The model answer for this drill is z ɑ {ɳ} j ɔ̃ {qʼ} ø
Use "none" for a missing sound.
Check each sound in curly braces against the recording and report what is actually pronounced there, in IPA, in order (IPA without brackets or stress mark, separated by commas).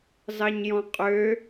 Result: ɲ, qʼ